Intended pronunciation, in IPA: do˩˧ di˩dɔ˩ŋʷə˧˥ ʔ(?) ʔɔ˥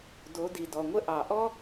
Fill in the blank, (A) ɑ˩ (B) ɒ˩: A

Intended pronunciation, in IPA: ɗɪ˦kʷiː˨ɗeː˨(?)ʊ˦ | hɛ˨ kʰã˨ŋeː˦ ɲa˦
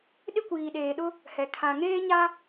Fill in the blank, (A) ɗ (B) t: A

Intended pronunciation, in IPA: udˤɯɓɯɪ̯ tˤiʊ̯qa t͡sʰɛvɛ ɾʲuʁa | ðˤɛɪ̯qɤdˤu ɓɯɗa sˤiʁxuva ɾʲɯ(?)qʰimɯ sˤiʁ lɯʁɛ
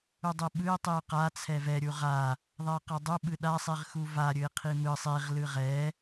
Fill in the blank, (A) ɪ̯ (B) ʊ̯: A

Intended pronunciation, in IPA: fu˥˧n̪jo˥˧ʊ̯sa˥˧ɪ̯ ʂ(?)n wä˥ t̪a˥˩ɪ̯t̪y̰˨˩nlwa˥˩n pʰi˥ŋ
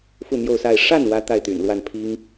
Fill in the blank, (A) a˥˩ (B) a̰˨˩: A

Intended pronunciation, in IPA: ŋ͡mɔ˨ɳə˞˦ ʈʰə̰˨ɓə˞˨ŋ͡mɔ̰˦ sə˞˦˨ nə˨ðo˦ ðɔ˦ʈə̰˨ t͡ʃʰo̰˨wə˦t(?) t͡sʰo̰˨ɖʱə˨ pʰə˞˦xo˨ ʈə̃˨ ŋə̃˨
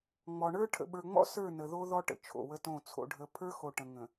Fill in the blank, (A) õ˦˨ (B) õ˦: A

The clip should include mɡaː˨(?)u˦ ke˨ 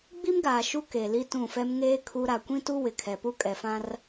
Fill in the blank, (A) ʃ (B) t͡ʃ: A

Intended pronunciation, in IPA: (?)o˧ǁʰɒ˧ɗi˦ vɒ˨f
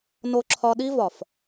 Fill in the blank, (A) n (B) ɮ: A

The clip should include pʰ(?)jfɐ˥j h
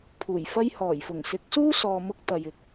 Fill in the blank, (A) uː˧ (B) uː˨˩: B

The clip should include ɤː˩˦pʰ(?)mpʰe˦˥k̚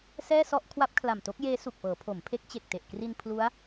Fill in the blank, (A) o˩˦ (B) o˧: A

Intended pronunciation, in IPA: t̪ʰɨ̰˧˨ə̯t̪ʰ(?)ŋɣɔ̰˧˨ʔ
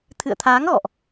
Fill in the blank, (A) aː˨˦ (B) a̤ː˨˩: A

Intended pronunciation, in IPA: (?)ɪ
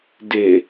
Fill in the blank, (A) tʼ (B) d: B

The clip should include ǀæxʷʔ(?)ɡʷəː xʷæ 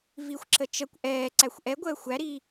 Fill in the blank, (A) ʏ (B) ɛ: B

